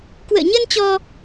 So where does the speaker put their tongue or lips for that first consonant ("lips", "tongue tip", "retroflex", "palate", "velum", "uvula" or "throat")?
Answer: velum